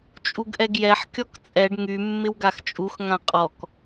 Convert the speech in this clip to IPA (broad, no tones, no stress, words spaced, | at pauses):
t͡ʃʼuɡʔɛɡjɛħ kʲɔkt͡sʼɛɖ ŋy mːɪwɡaxt͡ʃʼux ŋãqʼɔk